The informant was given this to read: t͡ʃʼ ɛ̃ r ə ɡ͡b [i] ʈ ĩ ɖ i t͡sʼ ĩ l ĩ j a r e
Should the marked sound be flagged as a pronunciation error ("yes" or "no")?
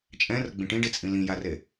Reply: yes